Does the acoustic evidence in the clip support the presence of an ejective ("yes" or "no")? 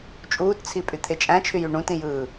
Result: yes